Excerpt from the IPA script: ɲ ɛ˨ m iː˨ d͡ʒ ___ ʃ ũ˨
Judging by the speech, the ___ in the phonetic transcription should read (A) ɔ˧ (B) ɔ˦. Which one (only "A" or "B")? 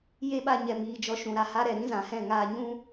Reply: A